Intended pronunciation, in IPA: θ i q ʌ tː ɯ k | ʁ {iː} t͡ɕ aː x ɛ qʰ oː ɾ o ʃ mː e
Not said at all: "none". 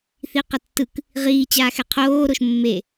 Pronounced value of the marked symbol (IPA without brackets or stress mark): iː